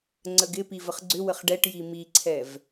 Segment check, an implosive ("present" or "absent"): absent